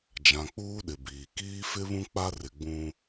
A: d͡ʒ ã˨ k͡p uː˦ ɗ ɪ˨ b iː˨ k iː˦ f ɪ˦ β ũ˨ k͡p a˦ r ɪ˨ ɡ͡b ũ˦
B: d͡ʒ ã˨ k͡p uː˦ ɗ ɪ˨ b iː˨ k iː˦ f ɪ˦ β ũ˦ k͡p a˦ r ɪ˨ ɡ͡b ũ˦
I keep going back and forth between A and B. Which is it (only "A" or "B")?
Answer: B